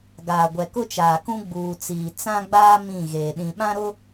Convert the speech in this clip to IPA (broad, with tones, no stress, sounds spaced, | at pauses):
ɡ aː˨ ɡʷ ɛ˨ k ʊ˦ t͡ʃ aː˨ k ũ˦ ɡ͡b uː˨ t͡s iː˨ t͡s ã˦ ɡ͡b aː˦ m ĩ˦˨ ɣ eː˨ ɗ ĩ˨ ɓ ã˦ ɾ ʊ˦